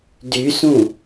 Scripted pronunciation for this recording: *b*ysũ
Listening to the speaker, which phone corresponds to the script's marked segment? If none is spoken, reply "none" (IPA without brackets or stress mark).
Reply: d